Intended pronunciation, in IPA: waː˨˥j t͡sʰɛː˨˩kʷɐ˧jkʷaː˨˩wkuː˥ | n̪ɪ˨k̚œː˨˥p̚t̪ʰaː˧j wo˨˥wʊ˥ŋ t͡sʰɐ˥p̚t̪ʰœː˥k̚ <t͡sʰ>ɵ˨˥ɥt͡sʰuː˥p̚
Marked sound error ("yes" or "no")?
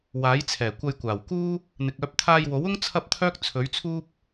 no